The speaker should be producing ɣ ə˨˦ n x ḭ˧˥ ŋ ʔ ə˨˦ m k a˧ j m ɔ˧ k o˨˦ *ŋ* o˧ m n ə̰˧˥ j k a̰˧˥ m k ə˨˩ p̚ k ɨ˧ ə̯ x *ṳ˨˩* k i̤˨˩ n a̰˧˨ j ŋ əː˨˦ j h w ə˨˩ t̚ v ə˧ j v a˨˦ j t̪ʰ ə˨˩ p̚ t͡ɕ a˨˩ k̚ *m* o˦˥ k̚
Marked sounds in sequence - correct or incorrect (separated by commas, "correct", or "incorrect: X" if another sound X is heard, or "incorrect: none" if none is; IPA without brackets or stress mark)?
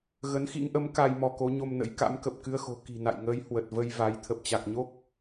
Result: incorrect: ɲ, incorrect: o̤˨˩, incorrect: ɲ